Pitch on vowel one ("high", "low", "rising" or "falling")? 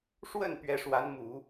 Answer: falling